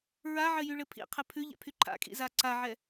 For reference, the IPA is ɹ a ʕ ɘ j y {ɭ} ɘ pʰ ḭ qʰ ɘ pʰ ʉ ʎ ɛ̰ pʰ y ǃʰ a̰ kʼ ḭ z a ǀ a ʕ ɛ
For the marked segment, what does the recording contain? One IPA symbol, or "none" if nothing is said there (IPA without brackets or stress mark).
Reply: ɭ